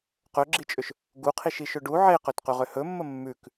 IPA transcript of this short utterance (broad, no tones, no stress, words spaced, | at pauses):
qɵɡ͡ǁit͡ʃʼʏʃ | ɡuqʰiʃiʃɵ ɖu ʕeqɵtqʉʁʏ hɵmːə mːʉk